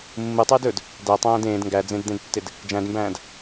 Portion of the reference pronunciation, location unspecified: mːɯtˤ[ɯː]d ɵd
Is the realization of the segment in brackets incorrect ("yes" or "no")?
no